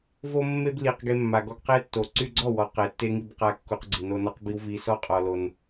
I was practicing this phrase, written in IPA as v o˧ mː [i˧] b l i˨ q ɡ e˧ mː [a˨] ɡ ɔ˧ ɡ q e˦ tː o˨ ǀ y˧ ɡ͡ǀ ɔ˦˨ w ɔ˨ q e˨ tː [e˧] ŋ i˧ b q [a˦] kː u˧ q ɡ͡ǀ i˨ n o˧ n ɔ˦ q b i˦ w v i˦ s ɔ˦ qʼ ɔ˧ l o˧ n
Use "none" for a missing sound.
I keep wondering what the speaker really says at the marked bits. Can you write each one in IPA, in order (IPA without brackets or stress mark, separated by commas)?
e˧, a˨, e˧, a˦